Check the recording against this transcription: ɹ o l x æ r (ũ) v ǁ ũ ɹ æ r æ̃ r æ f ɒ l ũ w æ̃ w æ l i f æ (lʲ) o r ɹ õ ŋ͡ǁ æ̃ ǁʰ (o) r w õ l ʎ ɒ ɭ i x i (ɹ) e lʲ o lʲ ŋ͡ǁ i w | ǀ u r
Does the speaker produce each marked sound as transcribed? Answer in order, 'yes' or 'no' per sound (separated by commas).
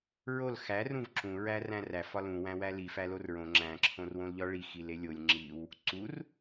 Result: yes, no, no, no